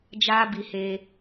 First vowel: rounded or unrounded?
unrounded